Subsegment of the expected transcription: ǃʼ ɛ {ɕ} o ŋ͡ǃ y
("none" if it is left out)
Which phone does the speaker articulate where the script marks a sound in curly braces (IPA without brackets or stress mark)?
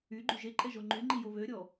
ʒ